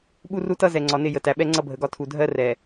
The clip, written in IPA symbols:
ɓu˦ru˦tʌ˦ zɛ˨ŋ͡ǀɒ˨nɪ˦˨ jə˨tæ˨ɓɛ˦ ŋ͡ǀʌ˦bʱə˨ɡɒ˦ tʰu˨dʱɜ˦ rɛ˨

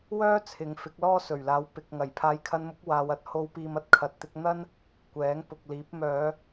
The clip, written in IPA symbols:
wœː˥ t͡sʰɪ˨ŋ fɪ˨˥k̚lɔː˥ sɵ˨˩ɥlaː˨˥wpɪ˨k̚ŋɐ˨˩j pʰaː˨˧jkʰɐ˧nmʊ˨˥k̚ waː˨˧wɐ˨˥t̚ ho˨˧wpiː˨mɐ˨t̚ kʰɐ˨t̚t̪ɪ˧k̚ n̪ɐ˥n | kʷɛː˨˥ŋpʊ˨k̚liː˨˥p̚ mœː˨˧

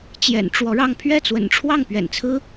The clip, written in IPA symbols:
t͡ɕjɛ̰˨˩nʈ͡ʂwɔ˧˥ɻɑ˥˧ŋ pʰɥɛ˥˩t͡swə̰˨˩nʈ͡ʂʰwɑ˥˩ŋ pɥɛ̰˨˩nt͡sʰɹ̩˥

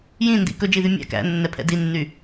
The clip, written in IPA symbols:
jĩndḭ kɵd͡ʒiðy mʲæ̰ kæ̰nːɛpʰɛ̰ dinːy

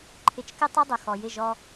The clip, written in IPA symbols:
ǃʰɪ˧t͡ʃ kɪ˦ tˤu˦dˤʊ˨xɔ˨ jɪ˦˨ʒɔ˧

